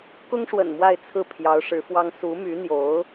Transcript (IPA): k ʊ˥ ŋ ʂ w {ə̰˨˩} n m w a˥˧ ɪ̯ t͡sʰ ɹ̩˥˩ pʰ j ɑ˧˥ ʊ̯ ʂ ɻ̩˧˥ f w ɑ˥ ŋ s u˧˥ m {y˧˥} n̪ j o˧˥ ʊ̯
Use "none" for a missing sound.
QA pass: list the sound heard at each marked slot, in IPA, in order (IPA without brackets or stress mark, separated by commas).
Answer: ə̰˨˩, y˧˥